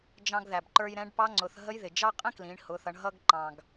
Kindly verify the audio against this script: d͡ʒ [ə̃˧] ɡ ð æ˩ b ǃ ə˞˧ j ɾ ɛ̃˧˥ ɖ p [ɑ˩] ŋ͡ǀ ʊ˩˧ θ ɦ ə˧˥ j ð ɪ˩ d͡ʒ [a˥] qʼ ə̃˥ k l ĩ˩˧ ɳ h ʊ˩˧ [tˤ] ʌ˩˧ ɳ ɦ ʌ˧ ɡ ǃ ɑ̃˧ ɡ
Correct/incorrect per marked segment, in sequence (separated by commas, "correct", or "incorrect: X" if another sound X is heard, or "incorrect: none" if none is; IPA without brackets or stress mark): incorrect: ɑ̃˧, incorrect: ɑ˧˥, incorrect: ɑ˥, incorrect: θ